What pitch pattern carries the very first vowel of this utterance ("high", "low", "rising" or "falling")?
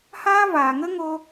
high